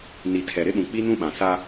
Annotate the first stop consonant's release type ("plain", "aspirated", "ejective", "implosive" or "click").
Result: aspirated